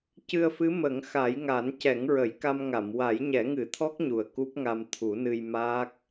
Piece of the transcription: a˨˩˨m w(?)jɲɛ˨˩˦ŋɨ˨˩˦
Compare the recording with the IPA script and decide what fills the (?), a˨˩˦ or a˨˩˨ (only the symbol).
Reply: a˨˩˦